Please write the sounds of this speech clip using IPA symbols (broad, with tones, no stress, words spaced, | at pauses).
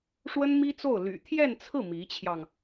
ʂwə˥nmi˥ t͡so˥˩ʊ̯ly̰˨˩ t̪ʰjɛ˥˧nt͡sʰɹ̩˥˩ mi˧˥t͡ɕʰjɑ˧ŋ